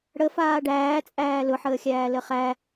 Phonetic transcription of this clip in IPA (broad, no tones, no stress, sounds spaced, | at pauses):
ɽ ə f aː ɖ æː t͡sʼ æː l ʊ ħ əː xʲ æː l ə χ æ